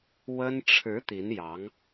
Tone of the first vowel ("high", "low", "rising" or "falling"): high